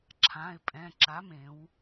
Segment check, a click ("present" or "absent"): present